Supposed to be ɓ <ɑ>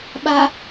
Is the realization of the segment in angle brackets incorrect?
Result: yes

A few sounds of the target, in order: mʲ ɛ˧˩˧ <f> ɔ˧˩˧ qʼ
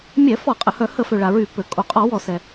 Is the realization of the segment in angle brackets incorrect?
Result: no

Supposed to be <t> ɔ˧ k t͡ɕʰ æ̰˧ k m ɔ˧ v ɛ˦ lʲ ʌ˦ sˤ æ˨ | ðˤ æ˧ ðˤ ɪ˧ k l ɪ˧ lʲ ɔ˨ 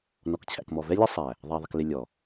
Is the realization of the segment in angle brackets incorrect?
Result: yes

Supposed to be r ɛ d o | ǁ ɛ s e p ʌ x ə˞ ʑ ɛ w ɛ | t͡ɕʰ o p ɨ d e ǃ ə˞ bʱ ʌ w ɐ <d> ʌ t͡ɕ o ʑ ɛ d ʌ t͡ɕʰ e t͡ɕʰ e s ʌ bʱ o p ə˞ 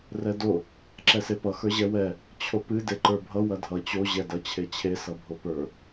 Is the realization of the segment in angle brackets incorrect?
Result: yes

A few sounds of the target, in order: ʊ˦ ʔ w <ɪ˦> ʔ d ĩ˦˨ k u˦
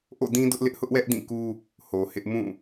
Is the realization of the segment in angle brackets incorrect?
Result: yes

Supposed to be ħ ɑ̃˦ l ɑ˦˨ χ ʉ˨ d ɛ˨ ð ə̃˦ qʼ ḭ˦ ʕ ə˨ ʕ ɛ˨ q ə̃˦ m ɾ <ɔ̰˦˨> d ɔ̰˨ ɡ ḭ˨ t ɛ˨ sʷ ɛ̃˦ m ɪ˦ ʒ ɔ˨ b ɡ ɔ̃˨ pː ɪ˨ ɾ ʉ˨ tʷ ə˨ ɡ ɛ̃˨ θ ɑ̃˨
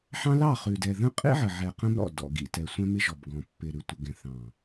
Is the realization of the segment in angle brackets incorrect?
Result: no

